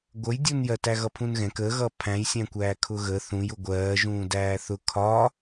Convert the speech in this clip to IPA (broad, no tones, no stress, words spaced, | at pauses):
ɡʷəjdʲunjɜ tæɣʌpʰũnɣɛ̃k əɣʌ pʰæ̃jsʲæ̃kʷæː kʰʊɣə θũj ʊɡʷɜːʒũː dæːθʊ kʰɒ